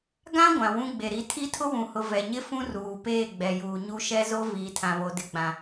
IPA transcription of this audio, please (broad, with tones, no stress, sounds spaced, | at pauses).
ɡ ã˦ ɡʷ ã˨ w ũ˦ ɡ͡b e˨ ɾ i˦ tʰ i˦ tʰ ʊ˦ w ũ˨ h ʊ˨ v ɛ˨ ɲ ɪ˦ f ũ˦ r uː˨ p eː˦˨ ɡ͡b ɛ˨ j uː˨ ɲ u˦ ʃ ɛ˦ z o˦ v iː˨ tʰ ã˨ β o˨ d ɪ˨ ɡ͡b ã˨